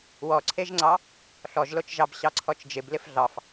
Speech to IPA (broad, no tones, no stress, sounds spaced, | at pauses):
w ɔ ǀʰ e ʒ ŋ͡ǀ ɑ | ɬ ɔ ʒ l o t͡ʃ ʒ ɑ b ɕ ɑ ǀʰ ɔ t͡ʃ d͡ʒ ɪ b l ɪ f ɮ ɑ f